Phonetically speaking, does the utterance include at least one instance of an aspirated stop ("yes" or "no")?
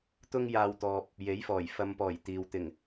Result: no